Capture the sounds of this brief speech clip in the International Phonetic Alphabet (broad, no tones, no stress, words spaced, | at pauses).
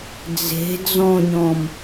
d͡ze̤ d͡zɔ̃ɲɔ̃m